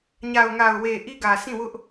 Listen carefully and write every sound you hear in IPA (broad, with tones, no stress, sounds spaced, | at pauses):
ɲ a˨ ʊ̯ ŋ a˨ ʊ̯ w e˨ ʔ i˦ ɡ ä˨ sʰ ĩ˦˨ w ʊ˦ ʔ